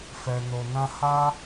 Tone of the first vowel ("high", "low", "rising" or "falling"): low